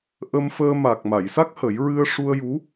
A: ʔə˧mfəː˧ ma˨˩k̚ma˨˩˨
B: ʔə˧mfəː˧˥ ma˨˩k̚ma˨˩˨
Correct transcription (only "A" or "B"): A